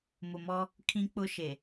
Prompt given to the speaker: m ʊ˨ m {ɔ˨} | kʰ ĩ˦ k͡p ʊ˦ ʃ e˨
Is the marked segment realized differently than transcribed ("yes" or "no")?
yes